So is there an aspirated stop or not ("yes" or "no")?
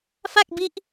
no